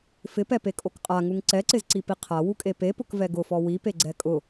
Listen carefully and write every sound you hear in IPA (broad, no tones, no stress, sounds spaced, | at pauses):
f ɪ p ɛ p e kʼ o k qʼ a ŋ u ŋ ǀ ɛ ǀ ɪ z ǀ i p i qʰ a w u kʼ e p e p ʊ k v ɛ ɡ ʊ f ɔ w i p e ɡ͡ǀ ɛ kʼ ʊ